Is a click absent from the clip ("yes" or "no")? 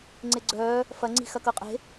no